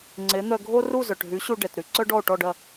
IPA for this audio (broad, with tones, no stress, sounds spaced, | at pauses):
ŋ͡ǀ e˩˥ n̪ œ˧ ɡʱ o˥ r u˥˩ z œ˩ ʈ ɦ y˩˥ ɕ u˧ ɖ ɛ˩ t ɾ y˧ ǀ œ˥ ɖ ɔ˥˩ o̯ ʈ ɔ˥˩ ɖ ɐ˥˩